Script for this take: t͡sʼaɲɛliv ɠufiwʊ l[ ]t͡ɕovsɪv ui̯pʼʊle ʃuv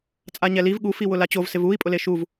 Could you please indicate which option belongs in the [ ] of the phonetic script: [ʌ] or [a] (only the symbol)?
a